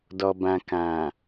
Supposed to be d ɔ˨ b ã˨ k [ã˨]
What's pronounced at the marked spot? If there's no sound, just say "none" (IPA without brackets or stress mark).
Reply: ã˨